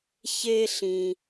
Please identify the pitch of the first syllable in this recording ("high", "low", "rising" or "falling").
high